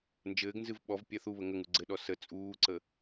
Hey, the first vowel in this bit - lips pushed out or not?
no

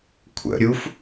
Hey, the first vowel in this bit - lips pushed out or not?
no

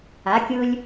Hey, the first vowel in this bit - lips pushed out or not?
no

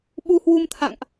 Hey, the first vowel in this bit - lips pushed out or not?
yes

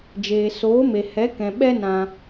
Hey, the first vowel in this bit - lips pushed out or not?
no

